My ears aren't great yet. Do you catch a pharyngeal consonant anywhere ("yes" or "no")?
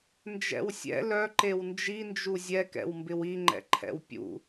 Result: no